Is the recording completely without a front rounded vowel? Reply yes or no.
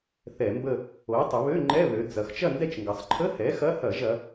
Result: no